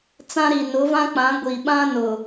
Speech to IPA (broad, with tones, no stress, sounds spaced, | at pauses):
t͡s ã˦ ɾ i˨ n ʊ˨˦ v ã˦ k͡p ã˨˦ ɡʷ i˨ ɓ ã˦ n ʊ˨